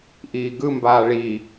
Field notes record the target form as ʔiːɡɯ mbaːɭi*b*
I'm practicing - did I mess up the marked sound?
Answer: yes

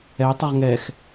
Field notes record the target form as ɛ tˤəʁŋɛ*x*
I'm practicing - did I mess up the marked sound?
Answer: no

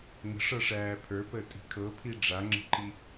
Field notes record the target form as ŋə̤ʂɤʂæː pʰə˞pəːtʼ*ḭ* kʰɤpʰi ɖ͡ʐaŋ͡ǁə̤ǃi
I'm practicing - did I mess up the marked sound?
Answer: yes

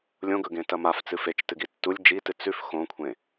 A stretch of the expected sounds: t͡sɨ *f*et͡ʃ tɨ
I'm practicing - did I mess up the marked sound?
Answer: no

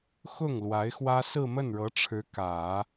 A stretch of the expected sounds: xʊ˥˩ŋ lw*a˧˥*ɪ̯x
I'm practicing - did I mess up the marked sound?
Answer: no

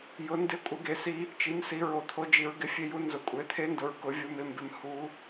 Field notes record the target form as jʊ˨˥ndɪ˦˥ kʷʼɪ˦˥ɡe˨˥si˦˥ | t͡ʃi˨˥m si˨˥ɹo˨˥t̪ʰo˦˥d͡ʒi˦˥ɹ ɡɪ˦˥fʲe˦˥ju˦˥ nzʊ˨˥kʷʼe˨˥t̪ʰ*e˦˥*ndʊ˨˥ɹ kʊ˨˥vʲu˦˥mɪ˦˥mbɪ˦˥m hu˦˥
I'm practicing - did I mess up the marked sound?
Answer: no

